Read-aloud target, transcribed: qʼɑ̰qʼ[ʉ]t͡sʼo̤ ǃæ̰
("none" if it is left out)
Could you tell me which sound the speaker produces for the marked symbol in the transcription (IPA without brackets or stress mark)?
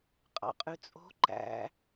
ʉ